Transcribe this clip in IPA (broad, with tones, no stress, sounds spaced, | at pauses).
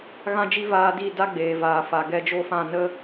ɣ ã˦ d͡ʒ i˦ v aː˧ d i˦˨ d a˦ ɡ͡b eː˨ v aː˨ f a˨ ɡ ɛ˧ d͡ʒ o˦˨ f ã˦˨ n ə˦